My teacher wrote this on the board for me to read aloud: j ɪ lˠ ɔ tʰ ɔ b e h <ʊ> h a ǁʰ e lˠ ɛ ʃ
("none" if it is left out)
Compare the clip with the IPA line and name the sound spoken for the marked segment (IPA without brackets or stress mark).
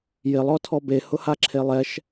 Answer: ʊ